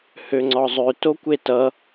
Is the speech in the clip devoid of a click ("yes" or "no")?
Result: no